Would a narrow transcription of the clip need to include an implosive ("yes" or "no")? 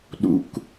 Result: yes